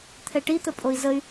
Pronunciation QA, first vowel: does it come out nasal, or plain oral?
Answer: oral